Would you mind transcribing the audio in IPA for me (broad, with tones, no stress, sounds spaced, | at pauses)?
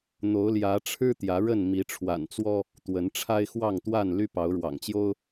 n̪ o˨˦ ʊ̯ l j ä˨˦ ʈ͡ʂʰ ɻ̩˦ t̪ j ä˨˦ ɻ ə˥˨ n m i˨˦ ʈ͡ʂʰ w a̰˨˩ n t͡s w ɔ˦ | t̪ w ə˨˦ n ʈ͡ʂʰ a˦ ɪ̯ x w ɑ˥˨ ŋ t̪ w a˥˨ n l y˦ p ɑ˨˦ ʊ̯ ɻ w ɑ̰˨˩ ŋ t͡ɕ j o˦ ʊ̯